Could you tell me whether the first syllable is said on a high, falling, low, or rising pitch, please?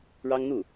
high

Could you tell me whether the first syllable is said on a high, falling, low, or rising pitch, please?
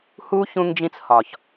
high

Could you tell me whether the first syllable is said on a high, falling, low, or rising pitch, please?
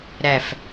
low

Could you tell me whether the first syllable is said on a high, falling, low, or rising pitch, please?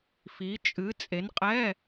rising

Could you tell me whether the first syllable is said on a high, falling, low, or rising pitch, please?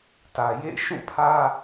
low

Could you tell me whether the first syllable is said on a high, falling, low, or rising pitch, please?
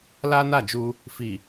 high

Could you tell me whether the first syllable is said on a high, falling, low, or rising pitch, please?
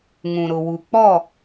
low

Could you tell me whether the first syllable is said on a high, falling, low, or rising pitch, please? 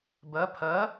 rising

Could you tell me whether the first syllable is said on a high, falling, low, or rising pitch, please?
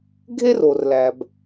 high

